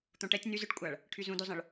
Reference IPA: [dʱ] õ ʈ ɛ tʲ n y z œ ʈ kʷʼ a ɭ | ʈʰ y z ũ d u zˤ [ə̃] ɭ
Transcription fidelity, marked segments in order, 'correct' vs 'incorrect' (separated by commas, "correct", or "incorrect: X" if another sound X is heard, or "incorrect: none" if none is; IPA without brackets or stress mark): incorrect: t̪, correct